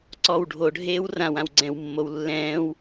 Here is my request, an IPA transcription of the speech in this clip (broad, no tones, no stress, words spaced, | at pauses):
ǀɔw ɖʱoɖʱeːw rãwãw ɡ͡ǀɛ̃wmːow lːɛ̃ːw